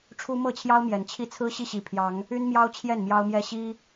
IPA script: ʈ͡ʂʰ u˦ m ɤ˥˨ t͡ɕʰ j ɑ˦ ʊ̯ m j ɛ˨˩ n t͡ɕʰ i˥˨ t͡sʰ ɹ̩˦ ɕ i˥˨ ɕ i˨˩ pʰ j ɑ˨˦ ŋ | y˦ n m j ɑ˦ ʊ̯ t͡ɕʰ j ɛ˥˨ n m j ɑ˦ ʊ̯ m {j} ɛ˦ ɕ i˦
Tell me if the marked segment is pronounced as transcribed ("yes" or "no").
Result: yes